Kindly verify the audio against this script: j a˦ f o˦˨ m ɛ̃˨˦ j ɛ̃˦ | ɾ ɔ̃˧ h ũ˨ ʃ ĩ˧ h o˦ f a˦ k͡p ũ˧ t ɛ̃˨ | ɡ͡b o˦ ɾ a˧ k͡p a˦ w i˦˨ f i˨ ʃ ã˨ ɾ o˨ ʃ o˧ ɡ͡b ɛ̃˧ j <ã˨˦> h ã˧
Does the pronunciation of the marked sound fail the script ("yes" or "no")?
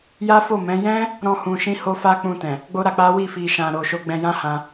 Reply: yes